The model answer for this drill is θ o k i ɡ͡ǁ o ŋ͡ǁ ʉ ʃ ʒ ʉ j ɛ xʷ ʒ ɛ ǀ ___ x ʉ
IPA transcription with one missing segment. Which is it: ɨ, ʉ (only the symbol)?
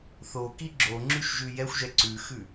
ʉ